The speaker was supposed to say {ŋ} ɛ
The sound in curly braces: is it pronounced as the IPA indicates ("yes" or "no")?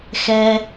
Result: no